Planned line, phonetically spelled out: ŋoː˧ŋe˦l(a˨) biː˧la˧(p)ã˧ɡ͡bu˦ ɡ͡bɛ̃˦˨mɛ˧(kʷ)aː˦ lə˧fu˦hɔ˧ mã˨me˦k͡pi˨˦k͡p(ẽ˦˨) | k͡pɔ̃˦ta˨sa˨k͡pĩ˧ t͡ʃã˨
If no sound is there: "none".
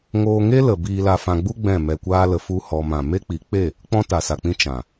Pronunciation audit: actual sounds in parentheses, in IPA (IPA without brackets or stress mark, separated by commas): ə˨, f, kʷ, e˦˨